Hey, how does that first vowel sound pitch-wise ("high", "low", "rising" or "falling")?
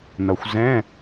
low